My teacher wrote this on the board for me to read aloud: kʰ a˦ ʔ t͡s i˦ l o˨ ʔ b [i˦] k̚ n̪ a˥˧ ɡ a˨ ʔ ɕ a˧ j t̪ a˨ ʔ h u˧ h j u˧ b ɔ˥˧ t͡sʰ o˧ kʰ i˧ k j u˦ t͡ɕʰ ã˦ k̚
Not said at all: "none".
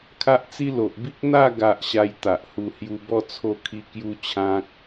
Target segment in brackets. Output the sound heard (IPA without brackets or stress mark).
i˦